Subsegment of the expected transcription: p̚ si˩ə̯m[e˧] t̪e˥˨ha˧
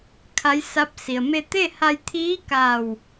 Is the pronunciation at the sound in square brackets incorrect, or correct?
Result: correct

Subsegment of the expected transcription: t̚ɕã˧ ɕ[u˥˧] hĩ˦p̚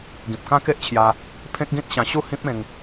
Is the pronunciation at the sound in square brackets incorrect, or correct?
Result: correct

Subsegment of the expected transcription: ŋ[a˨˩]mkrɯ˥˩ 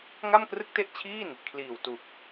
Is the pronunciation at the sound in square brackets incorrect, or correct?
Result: incorrect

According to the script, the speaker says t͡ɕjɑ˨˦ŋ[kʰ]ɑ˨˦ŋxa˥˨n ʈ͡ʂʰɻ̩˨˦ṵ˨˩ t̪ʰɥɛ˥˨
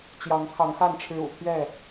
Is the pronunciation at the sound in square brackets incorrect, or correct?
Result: correct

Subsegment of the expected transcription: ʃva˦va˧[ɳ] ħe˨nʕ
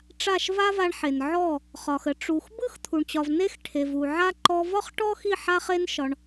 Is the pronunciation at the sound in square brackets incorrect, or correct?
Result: correct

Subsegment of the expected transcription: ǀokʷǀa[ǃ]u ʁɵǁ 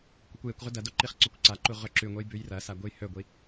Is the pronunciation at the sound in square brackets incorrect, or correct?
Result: correct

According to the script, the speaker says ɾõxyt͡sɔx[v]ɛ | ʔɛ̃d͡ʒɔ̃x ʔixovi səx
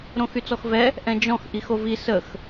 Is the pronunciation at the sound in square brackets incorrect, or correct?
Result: correct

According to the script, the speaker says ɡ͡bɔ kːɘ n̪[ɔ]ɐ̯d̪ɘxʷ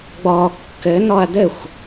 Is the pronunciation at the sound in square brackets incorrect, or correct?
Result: correct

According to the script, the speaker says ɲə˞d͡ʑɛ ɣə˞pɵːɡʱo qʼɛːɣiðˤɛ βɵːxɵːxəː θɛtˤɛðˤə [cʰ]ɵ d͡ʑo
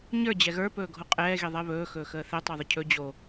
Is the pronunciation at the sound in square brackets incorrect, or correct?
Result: correct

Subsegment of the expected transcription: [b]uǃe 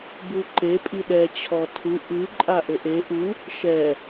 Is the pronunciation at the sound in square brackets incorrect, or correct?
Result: correct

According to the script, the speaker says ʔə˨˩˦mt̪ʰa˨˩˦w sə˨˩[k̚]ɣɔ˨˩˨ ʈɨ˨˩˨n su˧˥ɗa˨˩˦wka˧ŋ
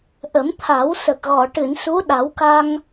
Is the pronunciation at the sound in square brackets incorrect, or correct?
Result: correct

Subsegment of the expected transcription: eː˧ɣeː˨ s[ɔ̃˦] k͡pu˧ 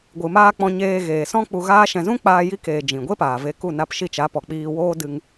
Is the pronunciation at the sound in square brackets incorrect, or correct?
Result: correct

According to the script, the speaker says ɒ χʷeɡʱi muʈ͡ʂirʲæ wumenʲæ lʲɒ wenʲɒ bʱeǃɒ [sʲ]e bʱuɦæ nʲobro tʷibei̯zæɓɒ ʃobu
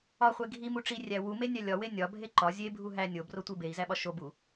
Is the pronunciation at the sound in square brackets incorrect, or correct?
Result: incorrect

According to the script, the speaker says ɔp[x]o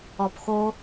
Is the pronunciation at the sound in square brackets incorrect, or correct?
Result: correct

